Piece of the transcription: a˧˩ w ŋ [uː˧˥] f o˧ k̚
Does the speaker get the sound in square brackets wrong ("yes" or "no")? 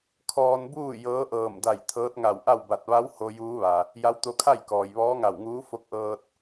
no